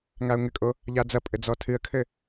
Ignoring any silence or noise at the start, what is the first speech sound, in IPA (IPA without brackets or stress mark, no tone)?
ŋ